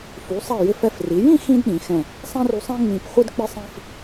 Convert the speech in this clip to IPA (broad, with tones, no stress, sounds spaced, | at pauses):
f u˩˧ sˤ ɛ˧˩ j ɪ˧˩ f ɛ˧˩ f r i˩˧ j ĩ˥˧ x ĩ˧ d ɗ ĩ˩˧ x ɛ̃˧˩ | sˤ ɛ̃˥ r u˧ sˤ ɛ̃˥ ŋ͡m ĩ˧˩ p χʷ ɪ˥ d k͡p ɪ˥ sˤ ĩ˥˧ f